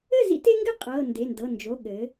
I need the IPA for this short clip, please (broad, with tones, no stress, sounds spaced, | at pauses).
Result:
ɘ˥˨ z ḭ˦ t e˦ ŋ ɡ ɘ˥˨ qʼ ɤ˩˧˩ n d e˩˧˩ n d ɤ˩˧˩ n d͡ʒ o˩˧˩ ɠ ɘ˩˧